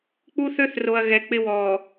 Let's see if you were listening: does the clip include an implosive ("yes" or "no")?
no